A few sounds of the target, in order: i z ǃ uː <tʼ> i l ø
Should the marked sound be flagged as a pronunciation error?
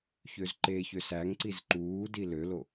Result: yes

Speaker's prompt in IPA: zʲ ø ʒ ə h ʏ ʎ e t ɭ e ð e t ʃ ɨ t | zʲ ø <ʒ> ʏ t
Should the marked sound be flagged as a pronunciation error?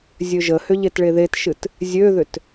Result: yes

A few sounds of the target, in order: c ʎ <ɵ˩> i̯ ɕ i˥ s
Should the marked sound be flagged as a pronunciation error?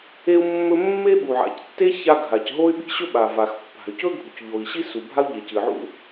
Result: yes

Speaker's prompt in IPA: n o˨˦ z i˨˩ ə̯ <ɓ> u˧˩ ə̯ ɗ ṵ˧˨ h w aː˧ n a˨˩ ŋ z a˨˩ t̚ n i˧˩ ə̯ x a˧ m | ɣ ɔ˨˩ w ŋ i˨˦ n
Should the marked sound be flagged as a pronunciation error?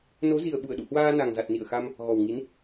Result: no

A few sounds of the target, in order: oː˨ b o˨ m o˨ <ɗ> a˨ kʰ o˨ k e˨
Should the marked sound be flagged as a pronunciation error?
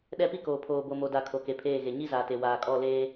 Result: yes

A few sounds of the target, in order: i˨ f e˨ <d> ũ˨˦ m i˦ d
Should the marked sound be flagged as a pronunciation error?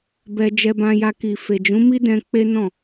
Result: yes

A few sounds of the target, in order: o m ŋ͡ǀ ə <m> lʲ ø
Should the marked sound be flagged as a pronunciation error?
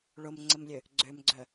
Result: no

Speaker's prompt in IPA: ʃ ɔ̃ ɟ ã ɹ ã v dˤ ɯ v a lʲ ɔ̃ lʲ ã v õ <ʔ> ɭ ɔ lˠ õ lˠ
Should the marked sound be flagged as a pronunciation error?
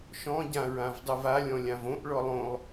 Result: no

